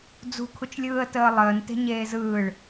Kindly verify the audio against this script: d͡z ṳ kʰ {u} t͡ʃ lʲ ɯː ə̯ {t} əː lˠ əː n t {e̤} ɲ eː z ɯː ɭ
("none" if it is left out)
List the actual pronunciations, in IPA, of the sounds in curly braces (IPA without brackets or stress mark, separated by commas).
u, t, e̤